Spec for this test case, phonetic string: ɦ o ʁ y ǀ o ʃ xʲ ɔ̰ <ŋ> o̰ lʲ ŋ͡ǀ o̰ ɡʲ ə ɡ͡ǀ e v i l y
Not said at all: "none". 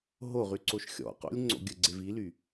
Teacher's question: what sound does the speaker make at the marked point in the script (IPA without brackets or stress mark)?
q